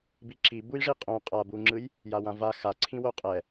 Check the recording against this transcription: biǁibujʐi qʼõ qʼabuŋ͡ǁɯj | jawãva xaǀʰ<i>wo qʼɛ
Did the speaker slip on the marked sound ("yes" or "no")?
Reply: yes